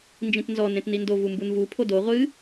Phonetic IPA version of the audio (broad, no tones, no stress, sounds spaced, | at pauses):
n d͡ʒ ĩ t n z ɔ n ẽ t n i n d o v u m b u n v u pʰ o d o ʁʷ ɨ